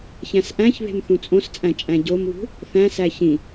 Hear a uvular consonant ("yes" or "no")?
no